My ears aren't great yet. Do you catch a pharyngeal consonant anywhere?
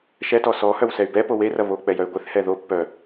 no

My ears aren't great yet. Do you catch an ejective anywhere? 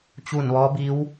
no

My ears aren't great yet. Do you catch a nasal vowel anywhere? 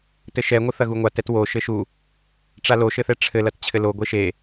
no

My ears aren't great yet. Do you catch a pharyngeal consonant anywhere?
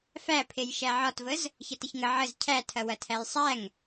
yes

